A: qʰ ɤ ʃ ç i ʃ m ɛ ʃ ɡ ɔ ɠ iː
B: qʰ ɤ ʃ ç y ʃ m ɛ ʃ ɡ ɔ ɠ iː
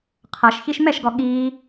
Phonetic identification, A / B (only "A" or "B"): A